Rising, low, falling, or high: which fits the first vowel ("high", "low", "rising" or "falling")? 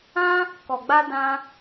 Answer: high